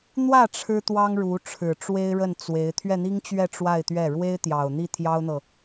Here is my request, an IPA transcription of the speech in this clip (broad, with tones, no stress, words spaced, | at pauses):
n̪wä˥˩ ʈ͡ʂʰɻ̩˥t̪wɑ˥ŋɻu˧˥ ʈ͡ʂʰɻ̩˨˩ʈ͡ʂwe˥ɪ̯ɻə˥˩n t͡swe˧˥ɪ̯ t̪ʰɥɛ˥˩n̪i˥ŋt͡ɕɥɛ˥˧ ʈ͡ʂwa˥˧ɪ̯t̪ɥɛ˥˩ ɻwe˥ɪ̯t̪jɑ˨˩ʊ̯ n̪i˥˩t̪ʰjɑ˥ʊ̯n̪ɤ˨